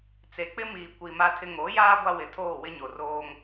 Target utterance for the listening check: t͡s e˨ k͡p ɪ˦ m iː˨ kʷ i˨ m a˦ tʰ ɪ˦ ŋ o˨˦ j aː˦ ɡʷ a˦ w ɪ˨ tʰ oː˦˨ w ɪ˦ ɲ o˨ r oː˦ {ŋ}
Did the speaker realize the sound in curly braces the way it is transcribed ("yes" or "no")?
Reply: yes